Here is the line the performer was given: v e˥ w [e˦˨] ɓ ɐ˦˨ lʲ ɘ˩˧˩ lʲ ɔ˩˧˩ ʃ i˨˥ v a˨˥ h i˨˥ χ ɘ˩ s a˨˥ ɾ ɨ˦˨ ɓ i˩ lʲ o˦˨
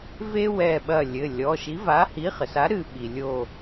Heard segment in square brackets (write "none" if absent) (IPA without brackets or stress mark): ɛ˦˨